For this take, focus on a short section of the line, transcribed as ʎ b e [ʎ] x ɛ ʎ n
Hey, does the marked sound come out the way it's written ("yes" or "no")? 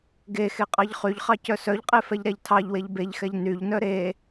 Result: yes